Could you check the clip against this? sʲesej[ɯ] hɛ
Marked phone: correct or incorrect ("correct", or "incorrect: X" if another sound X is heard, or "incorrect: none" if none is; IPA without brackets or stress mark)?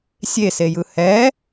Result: correct